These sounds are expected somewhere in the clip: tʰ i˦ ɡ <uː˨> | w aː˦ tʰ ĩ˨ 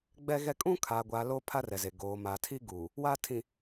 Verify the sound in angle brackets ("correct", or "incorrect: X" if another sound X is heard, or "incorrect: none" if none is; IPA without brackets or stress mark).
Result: correct